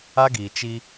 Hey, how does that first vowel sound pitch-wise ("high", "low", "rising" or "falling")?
high